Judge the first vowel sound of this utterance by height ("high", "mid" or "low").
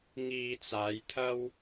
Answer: high